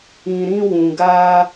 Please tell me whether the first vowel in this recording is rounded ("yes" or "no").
no